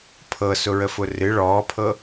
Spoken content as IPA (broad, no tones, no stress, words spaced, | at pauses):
pʰɤsʊɹəfʊ rɨ ɭɔːpʰɤ